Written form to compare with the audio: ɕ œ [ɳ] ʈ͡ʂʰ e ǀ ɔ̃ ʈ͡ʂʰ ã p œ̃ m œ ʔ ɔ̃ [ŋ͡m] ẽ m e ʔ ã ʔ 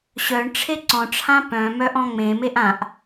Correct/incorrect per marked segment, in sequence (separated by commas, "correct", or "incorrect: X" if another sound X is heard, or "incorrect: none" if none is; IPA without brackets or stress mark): correct, correct